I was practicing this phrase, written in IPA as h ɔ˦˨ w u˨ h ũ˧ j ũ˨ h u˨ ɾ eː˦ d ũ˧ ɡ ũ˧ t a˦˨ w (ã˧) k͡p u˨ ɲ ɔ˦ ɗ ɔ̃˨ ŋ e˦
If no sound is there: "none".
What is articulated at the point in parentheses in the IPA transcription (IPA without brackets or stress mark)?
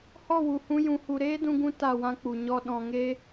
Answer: ã˦